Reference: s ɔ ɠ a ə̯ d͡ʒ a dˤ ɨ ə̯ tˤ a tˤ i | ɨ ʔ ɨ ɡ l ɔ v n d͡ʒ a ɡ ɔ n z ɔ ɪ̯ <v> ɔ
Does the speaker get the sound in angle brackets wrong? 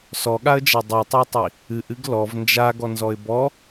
yes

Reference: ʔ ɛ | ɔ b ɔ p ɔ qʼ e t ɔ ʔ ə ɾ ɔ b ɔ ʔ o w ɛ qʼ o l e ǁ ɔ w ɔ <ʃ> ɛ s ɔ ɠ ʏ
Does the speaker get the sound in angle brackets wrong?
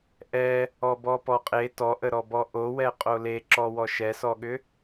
no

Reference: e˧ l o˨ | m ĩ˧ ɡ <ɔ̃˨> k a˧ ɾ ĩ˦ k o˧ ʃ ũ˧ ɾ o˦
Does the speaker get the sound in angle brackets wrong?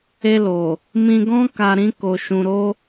yes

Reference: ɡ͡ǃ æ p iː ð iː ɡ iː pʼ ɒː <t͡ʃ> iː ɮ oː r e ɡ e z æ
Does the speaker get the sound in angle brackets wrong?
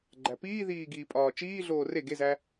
no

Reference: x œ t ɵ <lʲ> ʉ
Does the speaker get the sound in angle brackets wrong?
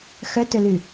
yes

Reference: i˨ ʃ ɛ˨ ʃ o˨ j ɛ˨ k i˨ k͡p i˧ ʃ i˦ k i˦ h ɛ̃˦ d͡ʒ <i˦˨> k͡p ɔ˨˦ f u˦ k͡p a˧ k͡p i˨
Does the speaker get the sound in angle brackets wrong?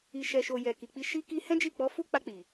no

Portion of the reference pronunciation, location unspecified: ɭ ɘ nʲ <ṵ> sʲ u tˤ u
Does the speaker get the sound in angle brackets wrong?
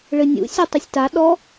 no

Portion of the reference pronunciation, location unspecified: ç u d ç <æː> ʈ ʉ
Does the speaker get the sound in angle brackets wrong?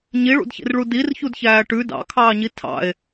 no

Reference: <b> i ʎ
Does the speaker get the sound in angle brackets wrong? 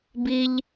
no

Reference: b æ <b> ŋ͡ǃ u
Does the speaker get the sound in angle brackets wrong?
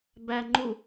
yes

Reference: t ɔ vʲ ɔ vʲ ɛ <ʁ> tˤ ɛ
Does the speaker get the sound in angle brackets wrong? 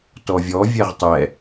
no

